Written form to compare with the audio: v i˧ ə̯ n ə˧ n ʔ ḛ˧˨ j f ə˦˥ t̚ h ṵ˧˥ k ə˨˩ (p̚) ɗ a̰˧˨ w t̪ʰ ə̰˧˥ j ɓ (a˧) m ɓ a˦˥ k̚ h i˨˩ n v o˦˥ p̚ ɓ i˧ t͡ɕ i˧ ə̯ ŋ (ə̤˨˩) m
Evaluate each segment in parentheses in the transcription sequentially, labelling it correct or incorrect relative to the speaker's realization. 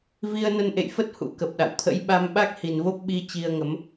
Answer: correct, correct, incorrect: ə˨˦

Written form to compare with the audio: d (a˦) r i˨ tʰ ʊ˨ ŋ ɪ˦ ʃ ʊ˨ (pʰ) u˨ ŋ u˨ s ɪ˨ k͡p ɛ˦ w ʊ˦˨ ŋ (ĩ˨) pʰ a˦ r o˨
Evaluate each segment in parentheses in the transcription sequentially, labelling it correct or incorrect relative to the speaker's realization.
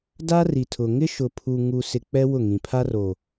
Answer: correct, correct, correct

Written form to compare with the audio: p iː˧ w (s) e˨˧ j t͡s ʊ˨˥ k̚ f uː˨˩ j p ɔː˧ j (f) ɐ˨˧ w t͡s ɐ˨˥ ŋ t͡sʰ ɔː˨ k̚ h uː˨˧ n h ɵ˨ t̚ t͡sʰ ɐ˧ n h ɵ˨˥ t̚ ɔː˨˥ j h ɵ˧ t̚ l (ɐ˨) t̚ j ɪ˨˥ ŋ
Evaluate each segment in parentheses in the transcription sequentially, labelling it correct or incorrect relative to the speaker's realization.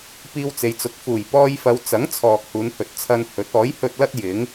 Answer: incorrect: t͡s, correct, incorrect: ɐ˥

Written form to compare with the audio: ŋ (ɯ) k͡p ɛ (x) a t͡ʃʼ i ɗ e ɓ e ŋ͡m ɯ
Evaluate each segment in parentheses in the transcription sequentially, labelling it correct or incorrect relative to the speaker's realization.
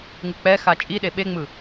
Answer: correct, correct

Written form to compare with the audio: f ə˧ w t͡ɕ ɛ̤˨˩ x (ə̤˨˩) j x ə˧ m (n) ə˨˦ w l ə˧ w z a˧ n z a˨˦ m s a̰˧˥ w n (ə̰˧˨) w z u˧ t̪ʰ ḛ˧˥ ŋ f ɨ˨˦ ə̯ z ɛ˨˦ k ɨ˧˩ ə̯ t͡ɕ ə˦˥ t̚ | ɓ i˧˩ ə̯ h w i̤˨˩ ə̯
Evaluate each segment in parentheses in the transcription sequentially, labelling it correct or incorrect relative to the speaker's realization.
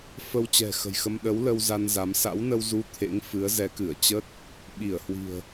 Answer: correct, incorrect: ɗ, incorrect: ə˧

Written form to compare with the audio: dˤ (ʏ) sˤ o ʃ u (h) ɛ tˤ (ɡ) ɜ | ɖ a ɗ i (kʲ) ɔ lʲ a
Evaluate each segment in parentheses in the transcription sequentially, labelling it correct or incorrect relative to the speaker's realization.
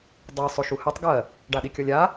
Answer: incorrect: ɛ, correct, correct, correct

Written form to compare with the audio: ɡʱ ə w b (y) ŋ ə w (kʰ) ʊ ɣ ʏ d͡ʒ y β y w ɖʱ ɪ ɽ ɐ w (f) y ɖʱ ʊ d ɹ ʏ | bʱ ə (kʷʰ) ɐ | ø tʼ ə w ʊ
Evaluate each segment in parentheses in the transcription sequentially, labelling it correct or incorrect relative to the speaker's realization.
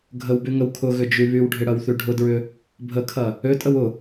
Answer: correct, correct, incorrect: θ, incorrect: kʰ

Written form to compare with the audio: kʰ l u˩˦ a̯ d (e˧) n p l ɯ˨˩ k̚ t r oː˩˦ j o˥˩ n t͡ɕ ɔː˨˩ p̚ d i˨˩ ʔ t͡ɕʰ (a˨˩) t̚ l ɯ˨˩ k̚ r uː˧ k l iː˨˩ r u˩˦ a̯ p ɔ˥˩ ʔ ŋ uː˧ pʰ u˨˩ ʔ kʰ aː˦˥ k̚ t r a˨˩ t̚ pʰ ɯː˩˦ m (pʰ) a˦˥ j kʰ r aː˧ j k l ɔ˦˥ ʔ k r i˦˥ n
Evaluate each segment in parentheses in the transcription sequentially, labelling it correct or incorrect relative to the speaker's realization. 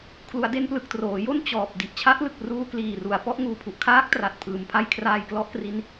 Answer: correct, incorrect: a˦˥, correct

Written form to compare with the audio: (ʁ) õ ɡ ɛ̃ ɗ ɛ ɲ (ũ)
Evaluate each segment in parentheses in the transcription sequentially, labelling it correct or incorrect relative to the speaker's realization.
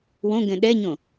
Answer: incorrect: w, incorrect: õ

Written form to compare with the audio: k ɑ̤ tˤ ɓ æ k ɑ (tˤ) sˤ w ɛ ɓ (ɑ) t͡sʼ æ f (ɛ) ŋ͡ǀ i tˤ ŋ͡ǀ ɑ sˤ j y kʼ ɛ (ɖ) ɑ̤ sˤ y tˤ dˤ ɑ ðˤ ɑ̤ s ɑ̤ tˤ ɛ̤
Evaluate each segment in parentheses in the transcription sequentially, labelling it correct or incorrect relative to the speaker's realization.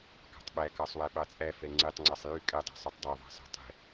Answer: incorrect: none, correct, correct, incorrect: dˤ

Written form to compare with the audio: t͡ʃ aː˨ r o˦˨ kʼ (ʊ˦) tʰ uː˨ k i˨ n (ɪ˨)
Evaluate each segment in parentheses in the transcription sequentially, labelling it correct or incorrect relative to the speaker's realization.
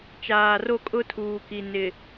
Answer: correct, correct

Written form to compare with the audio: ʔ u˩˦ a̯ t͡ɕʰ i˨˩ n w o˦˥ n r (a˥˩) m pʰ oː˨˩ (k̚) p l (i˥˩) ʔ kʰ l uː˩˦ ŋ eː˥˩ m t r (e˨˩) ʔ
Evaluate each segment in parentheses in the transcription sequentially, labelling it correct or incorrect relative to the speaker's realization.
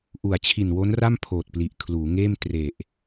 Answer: correct, incorrect: t̚, incorrect: i˨˩, correct

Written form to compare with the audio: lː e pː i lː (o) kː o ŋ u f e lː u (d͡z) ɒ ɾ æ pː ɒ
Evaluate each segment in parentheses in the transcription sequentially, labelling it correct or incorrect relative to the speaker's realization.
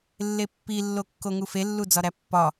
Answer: correct, correct

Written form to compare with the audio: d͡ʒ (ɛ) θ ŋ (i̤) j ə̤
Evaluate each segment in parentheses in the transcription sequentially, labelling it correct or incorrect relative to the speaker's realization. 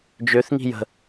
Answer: incorrect: ø, correct

